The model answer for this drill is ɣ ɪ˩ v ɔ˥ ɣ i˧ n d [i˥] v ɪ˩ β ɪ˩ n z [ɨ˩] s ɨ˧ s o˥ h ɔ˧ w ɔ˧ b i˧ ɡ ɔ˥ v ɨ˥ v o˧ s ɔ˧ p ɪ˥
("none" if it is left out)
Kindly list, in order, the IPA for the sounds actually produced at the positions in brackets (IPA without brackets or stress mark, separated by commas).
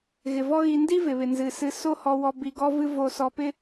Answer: i˥, ɨ˩